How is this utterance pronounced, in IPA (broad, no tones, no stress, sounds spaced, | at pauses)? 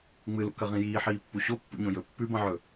ŋ͡m ɨ l ṵ k ɐ ʁ ĩ j iː ħ iː pː u ɕ o pː ṵ ɲ õ j ɵ pː ʉ b ɐ̃ ʕ ɵ